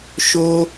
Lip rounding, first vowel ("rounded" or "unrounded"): rounded